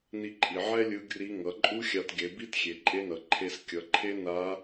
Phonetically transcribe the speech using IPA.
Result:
ni˧ǃʼi˩ ʕɛ˥ lʲɯ˧˥ɡri˧˥ ŋʌ˩˧ǃʼu˥xʲa˧tɡe˩˧ bi˧˥txʲe˩ǃʼe˧nʌ˩ ǃʰe˧skʲʌ˩˧ ǃʰe˥na˧˥

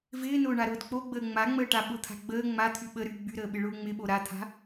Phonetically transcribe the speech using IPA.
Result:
vɪːnʊː ɳaɾʊːdk͡poɡ͡bəː ŋ͡maŋ͡məːʈa ɓʊt̪ʰa̤ ɡ͡bəː ŋ͡ma t̪ʰyɓə ɾy ɡ͡byɾəːɓɪ ɭʊːŋ͡mɪɓo ɾat̪ʰa̤

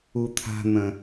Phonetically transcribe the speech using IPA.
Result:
ut̪ʰa̤n̪ə̃

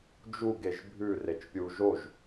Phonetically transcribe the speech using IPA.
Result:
d͡ʒu ɡeʒbʱʉ ret͡ʃpʲu ʒoʒ

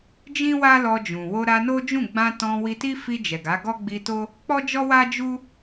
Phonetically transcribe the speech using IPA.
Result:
d͡ʒĩ˦wa˦lɔ˧d͡ʒũ˨ wo˧ɾa˧no˦ d͡ʒũ˦˨ɡ͡bã˧tɔ̃˧wi˧ ti˦fi˧ d͡ʒɛ˨ɡa˨˦ ɡɔ˦ɡ͡bi˧to˦ | k͡pɔ˦d͡ʒɔ˦wa˦ d͡ʒu˦

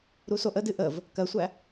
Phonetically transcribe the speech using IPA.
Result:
ɾusoʔədɨ ʔəv | kɜsʷæ

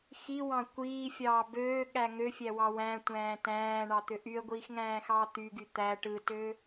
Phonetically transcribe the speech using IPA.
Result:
xiwɑ̃ kʷiːfʲɑː bøːɠæ ŋøfʲæwɑ wæ̃tʷæ̃ː tæ̃ːɳɑt̪ø ʔyə̯ɡʷiːxŋæ̃ːxɑː t̪yɡy t̪æ ʈɯtø

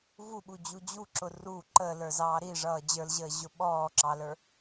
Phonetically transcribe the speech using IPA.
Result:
vuɓud͡ʑu d͡ʑuǁʊ ru ǃəːlə˞zɑː ɾiʐʌː d͡ʑə˞lʑəːʑʊ ɓɔːǁɑlə˞

